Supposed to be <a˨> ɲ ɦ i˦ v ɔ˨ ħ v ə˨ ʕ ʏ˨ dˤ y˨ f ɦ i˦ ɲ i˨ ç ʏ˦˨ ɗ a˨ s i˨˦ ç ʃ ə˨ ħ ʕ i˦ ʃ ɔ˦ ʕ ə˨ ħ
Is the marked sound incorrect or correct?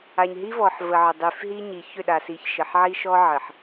correct